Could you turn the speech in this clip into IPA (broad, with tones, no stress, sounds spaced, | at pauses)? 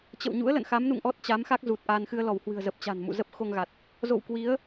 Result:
t͡ɕ ə̰˧˨ w ɲ ṵ˧˥ ə̯ l ə̰˧˨ n x a˨˦ m n ṵ˧˨ ŋ ʔ ɔ˦˥ t̚ t͡ɕ a˨˦ m x a˦˥ k̚ z u˨˩ t̚ ʔ a˧ n x ɨ˧ ə̯ l ɔ˧˩ w h w ɨ̤˨˩ ə̯ z ə˨˩ p̚ t͡ɕ a̤˨˩ n m ṵ˧˨ z ə˦˥ p̚ x o˧ ŋ ɣ a˨˩ t̚ | z o̰˧˨ w k w i˨˦ ə̯